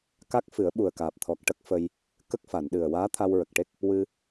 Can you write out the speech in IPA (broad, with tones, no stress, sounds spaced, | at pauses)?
k a˦˥ k̚ f ɨ˨˩˦ ə̯ ɓ u˨˩ ə̯ k aː˨˩ p̚ t̪ʰ ɔ˨˩ k̚ ʈ ə˦˥ k̚ f ə˧ j | k ə˦˥ k̚ f a˨˩˨ n ɗ ɨ˨˩ ə̯ w aː˧˥ t̪ʰ a˧ w ɹ ə˨˩ k̚ ʈ e˦˥ k̚ | w ɨ˧